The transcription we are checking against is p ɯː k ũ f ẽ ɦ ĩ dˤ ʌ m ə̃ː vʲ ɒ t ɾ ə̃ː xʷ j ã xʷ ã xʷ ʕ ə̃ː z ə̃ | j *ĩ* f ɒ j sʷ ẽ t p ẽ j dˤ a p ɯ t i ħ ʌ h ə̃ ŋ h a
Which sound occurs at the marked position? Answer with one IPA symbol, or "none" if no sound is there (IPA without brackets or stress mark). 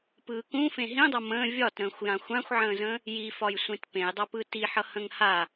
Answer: i